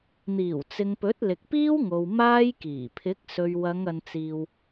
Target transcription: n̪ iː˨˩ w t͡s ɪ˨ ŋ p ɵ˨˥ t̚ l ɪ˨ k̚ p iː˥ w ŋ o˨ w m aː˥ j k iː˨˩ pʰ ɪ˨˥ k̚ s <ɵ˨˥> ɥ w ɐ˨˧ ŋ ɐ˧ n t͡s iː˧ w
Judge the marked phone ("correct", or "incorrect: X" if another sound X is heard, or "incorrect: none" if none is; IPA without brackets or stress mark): incorrect: ɵ˨